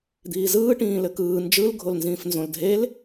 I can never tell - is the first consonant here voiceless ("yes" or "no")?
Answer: no